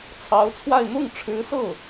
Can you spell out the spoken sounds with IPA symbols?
t͡sʰ ɑ˧˥ ʊ̯ t͡sʰ w a˥˧ ɪ̯ n̪ ʊ˥˩ ŋ ʈ͡ʂʰ ɻ̩˧˥ s ɤ˥˩

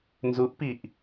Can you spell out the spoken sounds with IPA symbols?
n z u ʔ p i ʔ

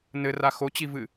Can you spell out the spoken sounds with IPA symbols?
n ɘ r a x o t͡ɕ i v ɨ

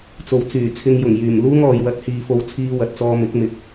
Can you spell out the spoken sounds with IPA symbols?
t͡s o˨ w t͡s yː˨˩ t͡sʰ ɪ˧ ŋ j ʊ˨˩ ŋ j yː˨˩ m l uː˥ ŋ ɔː˨ j w ɐ˨˥ t̚ h iː˨ f o˨˧ w t͡sʰ iː˧ w ɐ˨ t̚ t͡s ɔː˧ m ɪ˨˥ k̚ m ɪ˨˥ k̚

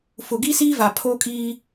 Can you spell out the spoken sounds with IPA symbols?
f ʊ˨ ɡ i˦ s iː˦ v a˨ pʰ oː˦ kʼ iː˦

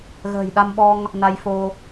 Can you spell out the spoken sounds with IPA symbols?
ɣ ə̤ː˨˩ j ɗ a˧ m ɓ ɔ˧ ŋ | n a˧ j f o˧

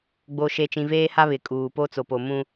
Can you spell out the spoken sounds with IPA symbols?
ɡ͡b o˨ ʃ e˨ t͡ʃ ĩ˨ v eː˦ h a˦ β ɪ˨ kʼ uː˨ p o˦ t͡s o˨ p o˨ m ũ˦

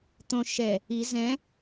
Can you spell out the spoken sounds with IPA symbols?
t̪ õ ʃ ɛ | i z ɛ̃

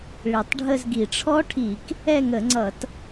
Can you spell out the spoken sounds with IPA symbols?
ɭ i˨˩ tˤ ɖʱ ə˥˧ z ɡ i˧˩˧ ʈ͡ʂʰ ɔ˦˥ ʈʰ i˧˩˧ k | ɛ˥˧ ŋ ə˧˩˧ ŋ͡ǀ ʌ˧˩˧ t

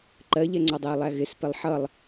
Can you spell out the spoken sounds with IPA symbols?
ǃ ɜ ʎ ɛ ŋ͡ǀ ɒ dˤ ɜ e̯ lˠ æ ɣ ɪ s p ɪ lˠ ħ ʌ lˠ

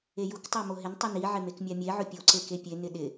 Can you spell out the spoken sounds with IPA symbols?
e j u k tˤ o m o ɦ ɪ n tˤ u n i ʕ ɪ m e k mʲ a mʲ e ʕ ʊ pʲ o ǀ e k e pʲ e n ɪ ɗ ɪ

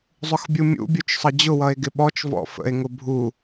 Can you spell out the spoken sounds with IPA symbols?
zˤ ʊ x bʲ u mʲ ṵ bʲ u t͡ʃ sˤ ʌ d͡ʑ ʊ w ʌ e̯ ɡ ɪ ɓ ɔ t͡ʃ v ɔ̰ f ə̰ e̯ ŋ ʊ bʱ u

